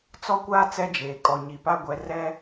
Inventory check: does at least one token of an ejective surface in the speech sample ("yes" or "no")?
yes